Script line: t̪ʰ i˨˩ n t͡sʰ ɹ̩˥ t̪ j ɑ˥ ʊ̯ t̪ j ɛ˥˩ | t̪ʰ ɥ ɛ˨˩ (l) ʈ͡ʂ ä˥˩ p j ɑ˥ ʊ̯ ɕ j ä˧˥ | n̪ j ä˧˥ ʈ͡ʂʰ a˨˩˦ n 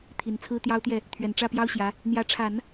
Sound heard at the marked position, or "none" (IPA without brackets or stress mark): n